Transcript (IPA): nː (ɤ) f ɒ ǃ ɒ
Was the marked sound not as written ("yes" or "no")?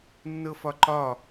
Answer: no